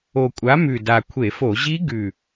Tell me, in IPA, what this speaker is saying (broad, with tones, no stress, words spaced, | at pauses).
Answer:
o˨˩kʷʼa˨˥mʉ˨˩ da˨˩kʷʰe˧˩˧fo˧˩˧ ʑi˦˥ɡʉ˨˩